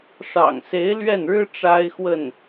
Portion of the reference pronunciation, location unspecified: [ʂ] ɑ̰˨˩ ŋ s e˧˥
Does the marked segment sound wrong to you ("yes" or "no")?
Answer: no